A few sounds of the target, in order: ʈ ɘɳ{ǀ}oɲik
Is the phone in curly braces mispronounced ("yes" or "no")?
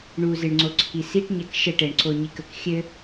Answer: no